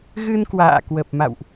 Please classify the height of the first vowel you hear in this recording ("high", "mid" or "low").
high